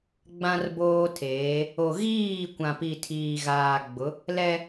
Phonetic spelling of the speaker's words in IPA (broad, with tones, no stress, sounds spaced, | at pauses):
ɡ͡b ã˦ r b oː˦ tʰ eː˨˦ | o˨ ɣ iː˦˨ kʷ ã˨ p i˨ tʰ iː˨ ɣ aː˨ ɡ͡b ʊ˨˦ | l ɛ˦